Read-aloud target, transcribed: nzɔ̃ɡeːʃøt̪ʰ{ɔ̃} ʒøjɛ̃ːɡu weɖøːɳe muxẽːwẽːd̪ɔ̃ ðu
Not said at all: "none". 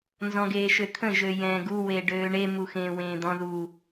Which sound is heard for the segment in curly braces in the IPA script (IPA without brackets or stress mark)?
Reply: ə̃